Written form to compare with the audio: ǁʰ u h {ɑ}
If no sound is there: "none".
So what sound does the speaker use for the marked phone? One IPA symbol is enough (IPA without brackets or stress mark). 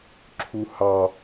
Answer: ɑ